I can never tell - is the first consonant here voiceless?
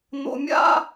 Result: no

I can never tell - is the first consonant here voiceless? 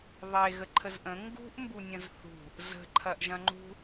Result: no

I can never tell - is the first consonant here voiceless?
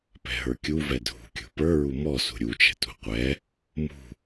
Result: yes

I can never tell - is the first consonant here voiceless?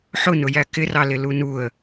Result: yes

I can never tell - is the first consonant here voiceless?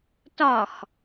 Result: yes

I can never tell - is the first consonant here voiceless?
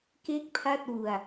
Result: yes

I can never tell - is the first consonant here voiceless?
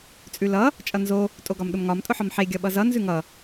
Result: yes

